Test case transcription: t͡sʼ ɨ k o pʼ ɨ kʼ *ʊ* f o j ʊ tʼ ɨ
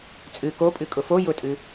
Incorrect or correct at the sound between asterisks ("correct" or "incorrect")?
correct